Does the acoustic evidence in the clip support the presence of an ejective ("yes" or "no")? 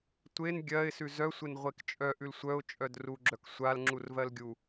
yes